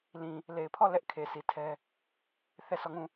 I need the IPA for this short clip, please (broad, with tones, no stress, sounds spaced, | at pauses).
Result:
l ĩ˨ | l e˨ ɪ̯ pʰ ɔ˦˨ l ɛ˦ ʔ kʰ e˨ s i˨ tʰ ɛ˦ | θ ɛ˦˨ sʰ ɔ˦˨ ŋ ũ˦˨